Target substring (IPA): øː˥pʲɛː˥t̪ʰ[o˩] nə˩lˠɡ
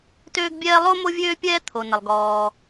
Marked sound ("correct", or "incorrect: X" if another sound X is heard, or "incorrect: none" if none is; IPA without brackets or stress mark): correct